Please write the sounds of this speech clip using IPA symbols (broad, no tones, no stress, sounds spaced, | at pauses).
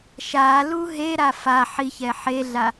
ʃ a l u ɦ e ɾ a f a ħ i ç ɛ ħ e ɮ a